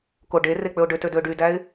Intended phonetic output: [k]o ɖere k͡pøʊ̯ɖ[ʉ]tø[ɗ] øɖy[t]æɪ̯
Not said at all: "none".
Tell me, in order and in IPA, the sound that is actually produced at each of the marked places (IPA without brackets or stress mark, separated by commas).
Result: k, ø, d, d